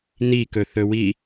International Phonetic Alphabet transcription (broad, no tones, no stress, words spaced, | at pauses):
nikɵθɵwi